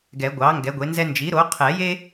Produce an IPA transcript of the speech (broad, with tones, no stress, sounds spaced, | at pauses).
ɡ ɛ˨˩˦ ɡʷ ɑ˩˥ ŋ ɡ ɛ˩˥ ɡʷ e˩˥ n z ɛ˥ n d͡ʒ i˩˥ ɾ o˩˥ qʰ ɛ˨˩˦ j e˥